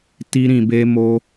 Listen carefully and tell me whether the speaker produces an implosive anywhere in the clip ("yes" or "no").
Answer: no